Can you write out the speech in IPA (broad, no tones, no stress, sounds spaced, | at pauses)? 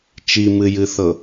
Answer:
t͡ʃ i m ɨ j ɨ θ ɤ